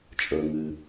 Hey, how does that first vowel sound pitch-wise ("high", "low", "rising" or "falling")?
low